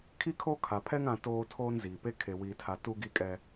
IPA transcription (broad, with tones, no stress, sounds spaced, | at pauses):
kʰ i˦ kʰ o˦ kʰ a˨ pʰ ɛ˦ ŋ ã˦ t oː˦ tʰ oː˦ n z iː˨ p e˦ kʰ e˨ w iː˨ tʰ a˨ t u˦ ɡ i˦ kʼ ɛ˦